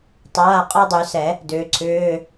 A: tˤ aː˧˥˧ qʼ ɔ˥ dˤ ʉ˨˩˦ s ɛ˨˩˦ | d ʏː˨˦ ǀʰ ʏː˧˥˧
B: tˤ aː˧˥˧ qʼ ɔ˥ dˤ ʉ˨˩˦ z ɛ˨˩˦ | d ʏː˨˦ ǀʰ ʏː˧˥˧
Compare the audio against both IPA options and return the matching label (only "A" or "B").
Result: A